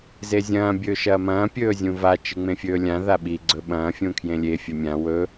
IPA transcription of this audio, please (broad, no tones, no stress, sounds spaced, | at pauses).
z e zʲ ɐ̃ː bʲ ɵː ʃ ɐː m ɐ̃ː pʲ ɵː zʲ ũ v a t͡ʃ ɨ ŋ͡m ẽ fʲ ɵː lʲ ã ð a ɓ i ɡ͡ǀ ɵ ɓ ɐ̃ː fʲ ũ kʰ j ẽ lʲ e fʲ ɵ mʲ ã w ɵ